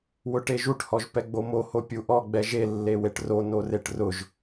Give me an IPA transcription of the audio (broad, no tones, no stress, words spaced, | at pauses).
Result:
wʊʈeʒuʈhɔʒ pɛɡ͡bomoho pʲuʔɔɡ͡bɛ ʒelːeweʈ ro noreʈrʊʒ